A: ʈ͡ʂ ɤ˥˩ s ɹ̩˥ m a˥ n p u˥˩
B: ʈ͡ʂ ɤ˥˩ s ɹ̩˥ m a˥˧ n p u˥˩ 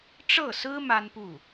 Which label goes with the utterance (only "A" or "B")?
A